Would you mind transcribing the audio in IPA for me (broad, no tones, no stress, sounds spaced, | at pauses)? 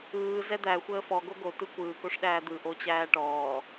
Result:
ɯː z ɛ d̪ æ xʷ əː f ɔ ɡ o ɡ o t ɯ kʷ ɯː k o ʂ ɗ æː d̪ ɯ ʔ o t͡ɕ æː ʈ ɔː